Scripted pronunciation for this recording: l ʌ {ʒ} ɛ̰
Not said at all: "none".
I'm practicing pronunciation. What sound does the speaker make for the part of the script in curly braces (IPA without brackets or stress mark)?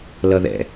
ð